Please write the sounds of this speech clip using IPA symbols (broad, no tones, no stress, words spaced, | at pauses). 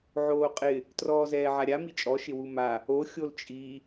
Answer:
ʕoːqʼɪ | trɔːzɛːʕaɾʲa mit͡ʃʼɔ ʃɪwuma | o xʲolt͡ʃʼi